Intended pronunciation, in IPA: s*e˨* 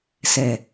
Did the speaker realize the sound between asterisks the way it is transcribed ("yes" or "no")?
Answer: no